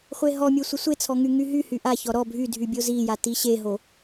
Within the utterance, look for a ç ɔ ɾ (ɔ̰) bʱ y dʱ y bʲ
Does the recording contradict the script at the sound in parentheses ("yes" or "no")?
yes